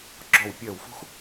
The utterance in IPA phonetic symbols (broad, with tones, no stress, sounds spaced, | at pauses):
ɡ͡ǁ ɔ˦˨ w pʲ ɜ˦˨ w f ṳ˥ x